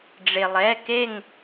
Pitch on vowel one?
low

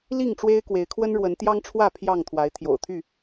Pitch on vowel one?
falling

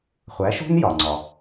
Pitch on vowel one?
rising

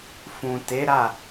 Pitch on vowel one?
low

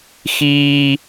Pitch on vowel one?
high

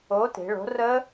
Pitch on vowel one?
rising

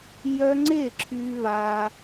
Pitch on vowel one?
high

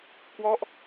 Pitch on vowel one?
falling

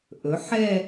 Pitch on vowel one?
rising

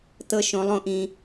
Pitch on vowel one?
low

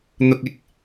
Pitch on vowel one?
low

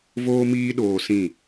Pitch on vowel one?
high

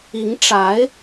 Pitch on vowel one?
rising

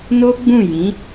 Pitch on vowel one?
high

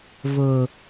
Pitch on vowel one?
low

